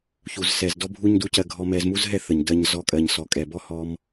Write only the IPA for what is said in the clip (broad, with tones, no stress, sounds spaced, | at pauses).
ç u˧ z s ɛ˧ z d ɔ˦ bʱ u˦ ɲ d u˦ c ɜ˧ ɡʱ ɔ˧ m ɛ˧ z m u˦ z ɦ ɛ˦ θ ə˨ ɲ d ɜ˧ ɲ z ɔ˧ kʼ ɜ˨ ɲ s ɔ˨ kʼ ɛ˨ b ɔ˦ h ɔ˧ m